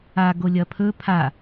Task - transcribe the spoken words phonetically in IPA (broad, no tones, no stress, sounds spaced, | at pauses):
a ɡ o lʲ ɐ pʰ ɵ pʰ a